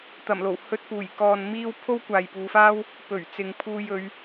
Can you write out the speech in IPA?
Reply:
t̪ɐ˨˩mlo˨˩w hɵ˧t̚puː˨˩j kɔː˨n miː˥w pʰo˥wkʷaː˨jpuː˨˧faː˥w | pɵ˨˩ɥ t͡sɪ˨ŋpʰuː˧j ɵ˨˧ɥ

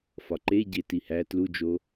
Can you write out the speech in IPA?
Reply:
fɒǃeɟe tihæ tlud͡ʒo

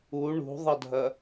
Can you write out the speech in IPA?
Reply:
u ɳṳðˤɐdʱɐ

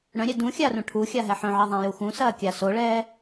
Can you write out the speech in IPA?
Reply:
ɽœ̃ɾʲɛ dũxʲarũ ʈʰuxʲaɦɛ ħœ̃ʕiðˤãju xũsɐːkʲa soɭɛː

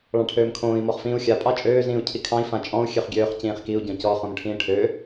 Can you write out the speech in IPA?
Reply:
ɭɑ̃ʈʰøːmkʰõːi̯ mɔχfĩːu̯xʲa pʼɑt͡ʃʼøː zĩːu̯cʰikʰɑ̃i̯ fãt͡ʃʼɔ̃u̯ xʲøχɡʲøːχ cĩːχkiu̯ ɟɔ̃cɔ χõmʈʰĩːʈʰø

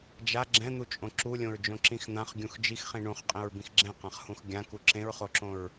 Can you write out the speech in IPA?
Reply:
d͡ʒa ɡ͡ǁɛ̃n̪ut͡ʃʼõ ǁulʲõɹ d͡ʒõǁĩxn̪ãχ ɡʲũxd͡ʒixχĩ ɳũχqʼẽɹ bĩxɡ͡ǁɛ̃qãχhũx ɡʲãku ǁẽɹχoǁõɹ

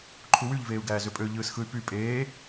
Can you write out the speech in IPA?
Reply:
ǃʰuwyʎ veːu̯ɡæːzøpʼø ʎɯːsxɯy̯py pʼeː

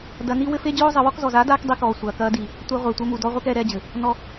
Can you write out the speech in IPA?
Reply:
dɐ˧ ni˦wɘ˦ fe˦d͡ʑoː˦zˤɘ˧ wɔ˧kzɔ˨zaː˨˦daː˧k dˤi˧kɔː˨ sʷɐː˨kɐː˧ di˨ | tʷe˧ʁʷɛ˨ tʷɘ˧mu˨dɔ˧ ʁʷɛ˦kɛː˧ɾɛː˧d͡ʑɘ˨ | nɔ˧

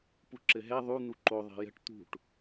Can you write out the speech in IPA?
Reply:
puǁɘɦɛ ðˤu n̪uǃo ðˤɛ̤jə̤ʈ t̪ṳʈ

